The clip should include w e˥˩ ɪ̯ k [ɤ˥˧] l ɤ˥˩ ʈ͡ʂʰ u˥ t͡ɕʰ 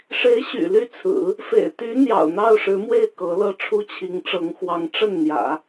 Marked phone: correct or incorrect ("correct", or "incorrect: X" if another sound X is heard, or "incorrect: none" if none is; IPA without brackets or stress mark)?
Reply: incorrect: ɤ˧˥